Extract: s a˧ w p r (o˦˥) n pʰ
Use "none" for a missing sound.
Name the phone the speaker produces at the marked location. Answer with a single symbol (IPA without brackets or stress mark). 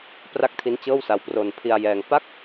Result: o˧